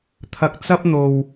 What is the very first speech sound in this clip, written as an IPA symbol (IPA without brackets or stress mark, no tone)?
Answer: t̪ʰ